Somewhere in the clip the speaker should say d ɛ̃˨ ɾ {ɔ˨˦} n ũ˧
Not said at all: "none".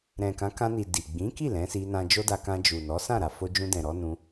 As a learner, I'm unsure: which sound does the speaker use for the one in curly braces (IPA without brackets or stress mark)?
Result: ɔ˨˦